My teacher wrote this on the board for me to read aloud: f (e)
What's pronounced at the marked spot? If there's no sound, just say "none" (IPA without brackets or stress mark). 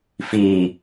i